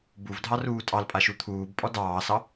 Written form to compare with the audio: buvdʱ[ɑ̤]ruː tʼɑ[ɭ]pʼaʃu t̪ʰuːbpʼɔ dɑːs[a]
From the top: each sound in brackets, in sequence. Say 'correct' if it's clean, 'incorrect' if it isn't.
incorrect: ɑ, incorrect: l, incorrect: ɑ

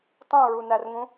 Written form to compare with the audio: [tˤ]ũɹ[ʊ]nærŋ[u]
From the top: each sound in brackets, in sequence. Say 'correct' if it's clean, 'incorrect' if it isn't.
correct, incorrect: u, incorrect: ũ

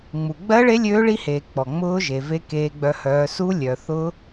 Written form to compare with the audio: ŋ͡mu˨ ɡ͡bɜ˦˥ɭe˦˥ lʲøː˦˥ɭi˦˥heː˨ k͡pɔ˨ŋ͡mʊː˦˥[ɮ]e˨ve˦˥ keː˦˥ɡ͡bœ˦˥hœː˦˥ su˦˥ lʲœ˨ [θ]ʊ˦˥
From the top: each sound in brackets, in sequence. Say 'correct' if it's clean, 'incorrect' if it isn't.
incorrect: ʒ, correct

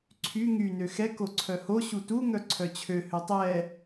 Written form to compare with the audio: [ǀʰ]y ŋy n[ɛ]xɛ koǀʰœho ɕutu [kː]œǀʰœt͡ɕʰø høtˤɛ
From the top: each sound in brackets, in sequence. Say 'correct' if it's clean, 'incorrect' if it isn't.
correct, incorrect: ø, incorrect: ŋ

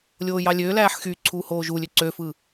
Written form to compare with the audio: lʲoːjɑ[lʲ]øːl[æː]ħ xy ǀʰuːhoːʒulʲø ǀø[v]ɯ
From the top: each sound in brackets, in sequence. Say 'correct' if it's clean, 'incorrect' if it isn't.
correct, correct, incorrect: f

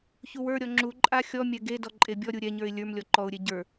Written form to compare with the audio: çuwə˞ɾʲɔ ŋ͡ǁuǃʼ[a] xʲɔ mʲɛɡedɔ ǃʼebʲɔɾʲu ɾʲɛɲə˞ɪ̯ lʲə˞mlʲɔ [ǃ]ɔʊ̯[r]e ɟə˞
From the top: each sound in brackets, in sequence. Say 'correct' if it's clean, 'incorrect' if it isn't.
correct, correct, incorrect: ɾʲ

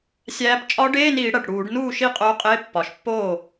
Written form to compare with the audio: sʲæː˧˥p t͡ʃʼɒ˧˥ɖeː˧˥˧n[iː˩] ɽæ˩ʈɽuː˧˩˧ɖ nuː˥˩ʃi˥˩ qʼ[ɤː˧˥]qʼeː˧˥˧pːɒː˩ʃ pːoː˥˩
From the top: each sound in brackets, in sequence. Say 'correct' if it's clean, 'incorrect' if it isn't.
incorrect: iː˧˩˧, incorrect: oː˧˥

